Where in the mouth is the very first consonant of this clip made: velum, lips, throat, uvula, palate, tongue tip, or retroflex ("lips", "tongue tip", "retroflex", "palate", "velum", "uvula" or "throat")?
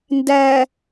tongue tip